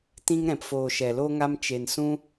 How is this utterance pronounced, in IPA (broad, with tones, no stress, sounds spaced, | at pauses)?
t ĩ˧ ŋ ɾ ɛ̃˨ p f oː˨ ʃ ɛ˨ l o˧ ŋ a˧ m t͡ʃ e˨ n s ũ˧